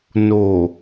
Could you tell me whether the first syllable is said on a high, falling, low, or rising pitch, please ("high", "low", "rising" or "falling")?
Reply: low